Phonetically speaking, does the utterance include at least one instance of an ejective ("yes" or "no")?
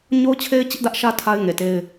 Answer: no